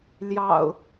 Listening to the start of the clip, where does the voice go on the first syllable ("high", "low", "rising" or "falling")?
low